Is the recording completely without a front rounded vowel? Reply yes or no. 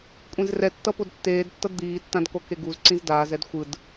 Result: yes